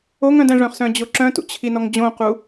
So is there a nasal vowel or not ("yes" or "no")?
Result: yes